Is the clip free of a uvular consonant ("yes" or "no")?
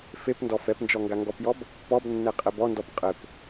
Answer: no